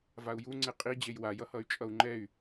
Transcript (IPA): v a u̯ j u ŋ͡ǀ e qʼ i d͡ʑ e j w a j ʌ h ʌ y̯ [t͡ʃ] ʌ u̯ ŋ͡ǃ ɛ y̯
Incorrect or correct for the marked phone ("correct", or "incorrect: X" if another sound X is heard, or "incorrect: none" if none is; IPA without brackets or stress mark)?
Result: incorrect: t͡ʃʼ